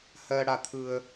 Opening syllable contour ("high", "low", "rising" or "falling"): high